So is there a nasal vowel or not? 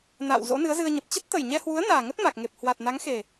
no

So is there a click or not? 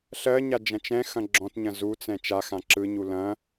yes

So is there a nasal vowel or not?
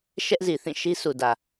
yes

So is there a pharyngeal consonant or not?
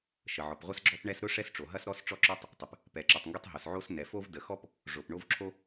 yes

